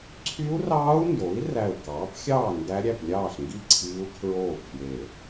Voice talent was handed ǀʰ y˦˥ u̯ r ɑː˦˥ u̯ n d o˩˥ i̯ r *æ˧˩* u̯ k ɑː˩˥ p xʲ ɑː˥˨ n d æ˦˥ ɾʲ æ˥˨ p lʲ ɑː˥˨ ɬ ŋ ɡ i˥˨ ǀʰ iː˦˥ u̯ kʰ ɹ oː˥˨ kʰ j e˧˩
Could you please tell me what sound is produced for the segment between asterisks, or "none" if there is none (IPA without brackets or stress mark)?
æ˧˩